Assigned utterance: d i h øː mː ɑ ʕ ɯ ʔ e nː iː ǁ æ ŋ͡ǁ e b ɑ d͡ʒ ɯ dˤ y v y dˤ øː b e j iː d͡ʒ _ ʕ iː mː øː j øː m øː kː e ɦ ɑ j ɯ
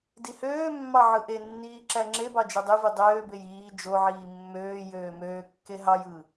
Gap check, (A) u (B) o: B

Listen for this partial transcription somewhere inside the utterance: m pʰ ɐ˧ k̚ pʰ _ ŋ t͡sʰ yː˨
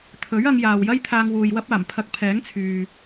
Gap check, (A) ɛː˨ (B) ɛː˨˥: B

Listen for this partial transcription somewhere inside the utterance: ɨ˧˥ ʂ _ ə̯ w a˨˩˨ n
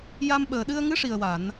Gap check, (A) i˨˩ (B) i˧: A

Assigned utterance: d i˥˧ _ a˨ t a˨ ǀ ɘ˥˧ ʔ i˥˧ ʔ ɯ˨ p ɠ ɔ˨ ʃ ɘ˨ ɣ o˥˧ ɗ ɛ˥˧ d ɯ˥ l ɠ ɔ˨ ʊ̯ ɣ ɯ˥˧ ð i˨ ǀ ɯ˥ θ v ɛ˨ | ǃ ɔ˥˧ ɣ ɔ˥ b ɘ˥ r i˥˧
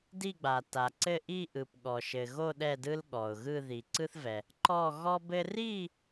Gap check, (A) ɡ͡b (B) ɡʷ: A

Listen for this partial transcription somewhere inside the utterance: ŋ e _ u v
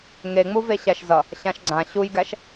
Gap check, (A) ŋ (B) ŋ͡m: B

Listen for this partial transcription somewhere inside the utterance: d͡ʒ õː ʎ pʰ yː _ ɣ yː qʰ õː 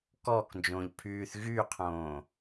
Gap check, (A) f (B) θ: B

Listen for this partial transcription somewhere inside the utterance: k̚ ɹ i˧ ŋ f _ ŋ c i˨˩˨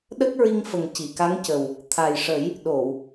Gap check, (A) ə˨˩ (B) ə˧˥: A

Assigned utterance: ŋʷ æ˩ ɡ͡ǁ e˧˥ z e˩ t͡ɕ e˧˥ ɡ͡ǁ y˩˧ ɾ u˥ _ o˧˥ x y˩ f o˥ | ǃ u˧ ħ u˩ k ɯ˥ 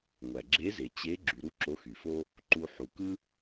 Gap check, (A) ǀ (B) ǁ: B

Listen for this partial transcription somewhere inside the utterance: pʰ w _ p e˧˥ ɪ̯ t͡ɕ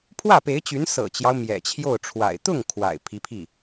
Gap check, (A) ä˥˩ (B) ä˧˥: A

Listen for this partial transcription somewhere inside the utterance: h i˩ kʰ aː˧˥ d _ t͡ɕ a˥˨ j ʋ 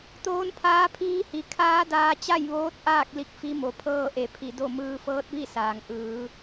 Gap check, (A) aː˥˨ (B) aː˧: B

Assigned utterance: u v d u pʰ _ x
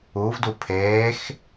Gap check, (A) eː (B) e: A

